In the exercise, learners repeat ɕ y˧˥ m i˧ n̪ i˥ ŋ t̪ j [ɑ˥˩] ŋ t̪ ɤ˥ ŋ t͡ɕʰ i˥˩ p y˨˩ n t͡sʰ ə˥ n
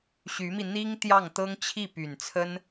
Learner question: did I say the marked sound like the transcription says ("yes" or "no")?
yes